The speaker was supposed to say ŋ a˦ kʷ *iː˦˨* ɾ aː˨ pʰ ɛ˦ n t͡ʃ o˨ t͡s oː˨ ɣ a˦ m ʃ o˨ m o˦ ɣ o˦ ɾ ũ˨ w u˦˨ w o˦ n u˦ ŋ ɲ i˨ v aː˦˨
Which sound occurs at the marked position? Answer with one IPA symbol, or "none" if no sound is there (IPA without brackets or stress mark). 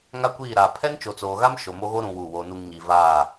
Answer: iː˦˨